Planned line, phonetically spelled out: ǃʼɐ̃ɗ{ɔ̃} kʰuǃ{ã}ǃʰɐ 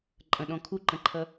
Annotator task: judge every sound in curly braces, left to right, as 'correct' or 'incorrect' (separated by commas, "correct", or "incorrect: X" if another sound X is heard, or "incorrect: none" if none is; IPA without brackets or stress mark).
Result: correct, incorrect: ɐ̃